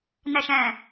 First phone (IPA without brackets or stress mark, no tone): n